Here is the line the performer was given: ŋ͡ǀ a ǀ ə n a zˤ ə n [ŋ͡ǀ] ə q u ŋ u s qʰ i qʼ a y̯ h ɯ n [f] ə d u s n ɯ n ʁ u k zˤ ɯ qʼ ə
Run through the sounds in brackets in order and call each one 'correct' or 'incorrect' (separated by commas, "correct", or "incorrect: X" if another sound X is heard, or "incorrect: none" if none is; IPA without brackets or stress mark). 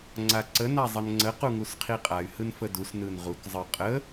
correct, correct